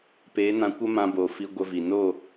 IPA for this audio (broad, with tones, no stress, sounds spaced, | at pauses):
p e˨˦ n ã˧ kʷ ə˦ m ã˧ b o˨ f i˧ ɡʷ ə˧ v i˨ n o˦˨